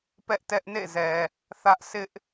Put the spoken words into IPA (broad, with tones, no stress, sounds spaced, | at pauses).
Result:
p ɛ˦ ʔ t ɛ˦ ʔ n ḛ˦˨ z ɛ˨ | θ ä˦ ʔ sʰ ɪ˦ ʔ